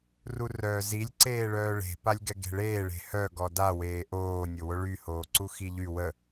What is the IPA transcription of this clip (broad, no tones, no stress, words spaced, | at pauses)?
rurœːzilʲ ǀeːɭœːɭe̤ palʲɡɛɡe̤ɭeː ɭe̤hœ ɡɔda weːʔoː nʲowoɭy hoːǀuxiʎy wə